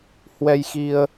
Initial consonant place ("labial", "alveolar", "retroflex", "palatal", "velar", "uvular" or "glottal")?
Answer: glottal